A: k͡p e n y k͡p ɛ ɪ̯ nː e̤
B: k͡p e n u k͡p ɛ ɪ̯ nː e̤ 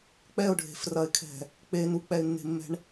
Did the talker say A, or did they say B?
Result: B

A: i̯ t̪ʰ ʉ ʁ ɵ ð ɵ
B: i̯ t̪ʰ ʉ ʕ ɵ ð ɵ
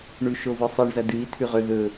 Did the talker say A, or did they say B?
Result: A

